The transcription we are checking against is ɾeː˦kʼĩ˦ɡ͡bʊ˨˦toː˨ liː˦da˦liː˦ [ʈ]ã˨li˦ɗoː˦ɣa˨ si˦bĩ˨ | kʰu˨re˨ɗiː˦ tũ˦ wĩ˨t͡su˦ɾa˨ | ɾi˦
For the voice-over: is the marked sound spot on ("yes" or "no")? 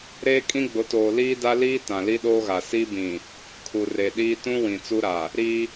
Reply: no